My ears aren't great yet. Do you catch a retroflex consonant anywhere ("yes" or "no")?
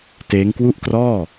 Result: no